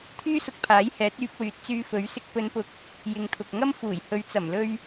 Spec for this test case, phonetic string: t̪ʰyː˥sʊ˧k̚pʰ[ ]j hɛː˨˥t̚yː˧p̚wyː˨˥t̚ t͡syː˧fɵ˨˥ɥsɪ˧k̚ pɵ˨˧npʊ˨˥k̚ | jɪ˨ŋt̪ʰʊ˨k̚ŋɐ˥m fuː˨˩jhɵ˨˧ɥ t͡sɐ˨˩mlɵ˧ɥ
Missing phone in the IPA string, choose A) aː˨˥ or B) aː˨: A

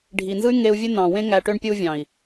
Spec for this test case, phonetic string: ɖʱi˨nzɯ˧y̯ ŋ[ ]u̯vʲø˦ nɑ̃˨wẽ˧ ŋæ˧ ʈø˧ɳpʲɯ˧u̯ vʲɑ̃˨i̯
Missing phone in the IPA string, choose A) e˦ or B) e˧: B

